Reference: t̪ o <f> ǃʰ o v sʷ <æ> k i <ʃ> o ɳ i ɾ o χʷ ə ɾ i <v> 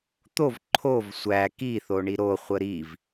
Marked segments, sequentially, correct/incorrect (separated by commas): incorrect, correct, incorrect, correct